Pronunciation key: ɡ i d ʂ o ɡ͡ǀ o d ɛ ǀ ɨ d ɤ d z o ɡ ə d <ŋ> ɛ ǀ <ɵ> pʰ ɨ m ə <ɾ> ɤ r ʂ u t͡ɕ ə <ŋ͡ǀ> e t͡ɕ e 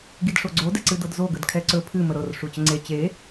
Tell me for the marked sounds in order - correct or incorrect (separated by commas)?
incorrect, correct, correct, correct